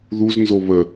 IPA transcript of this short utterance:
ðuznzo βə

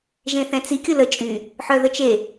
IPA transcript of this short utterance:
ʒẽθɛ̃t͡si kʲʊlə t͡ʃʼy | ħœðət͡ʃe

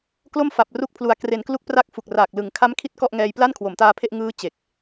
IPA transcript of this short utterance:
klo˥˩mfa˨˩p̚ru˦˥k̚pʰlu˩˦a̯ kre˩˦nklu˦˥k̚pra˦˥k̚ fu˨˩k̚raː˨˩k̚ lɯ˨˩ŋ kʰa˦˥mkʰi˦˥t̚ kɔ˥˩ʔŋɛː˧j pla˥˩nkʰwo˩˦mtaː˧pʰe˥˩ʔ ŋɯː˦˥ t͡ɕe˨˩k̚

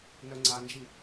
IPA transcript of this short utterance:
nœŋ͡ǀand͡ʒi

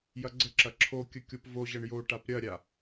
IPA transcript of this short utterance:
jɐɡ͡ǀəǁɐ ǁʰokʲə kʲopvoʑɐɳ joʈap ɾʲɐɾʲa

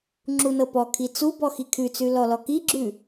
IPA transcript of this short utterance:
ŋ͡ǁunɤpɔkʰi t͡subɔ xikʰʉt͡sʉ lɔlɔkiɡ͡ǁʉ

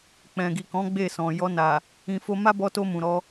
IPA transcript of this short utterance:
k͡pɛ̃˨ɡi˨kɔ̃˨˦ ɡ͡be˦˨sɔ̃˨ jɔ˧na˨ | ĩ˧fo˦ ma˦bɔ˧to˧ mũ˨ɾɔ˧

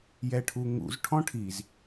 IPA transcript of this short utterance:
jɛʈʰuŋṵz ʈʰɔ̃ʈʰiz

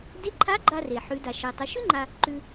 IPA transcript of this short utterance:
de˧˥ǃʰa˧˥ɡ͡ǃa˧re˩ ħʉ˩˧da˩ ʃe˩tˤə˩˧ʃʉ˥ ŋ͡ǃa˧ | ǃʉ˧

